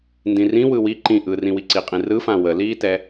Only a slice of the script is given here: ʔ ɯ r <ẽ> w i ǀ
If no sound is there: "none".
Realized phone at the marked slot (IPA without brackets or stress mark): ĩ